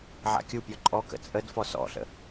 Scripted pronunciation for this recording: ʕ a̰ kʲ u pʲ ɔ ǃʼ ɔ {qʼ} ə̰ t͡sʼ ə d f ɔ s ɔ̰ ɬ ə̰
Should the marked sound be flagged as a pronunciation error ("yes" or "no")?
yes